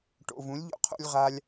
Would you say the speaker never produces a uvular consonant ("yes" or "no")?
no